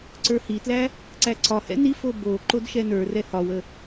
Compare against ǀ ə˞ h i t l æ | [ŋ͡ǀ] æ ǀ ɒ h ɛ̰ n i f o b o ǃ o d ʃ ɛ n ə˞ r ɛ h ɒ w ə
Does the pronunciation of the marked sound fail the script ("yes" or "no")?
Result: yes